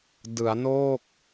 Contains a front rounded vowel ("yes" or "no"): no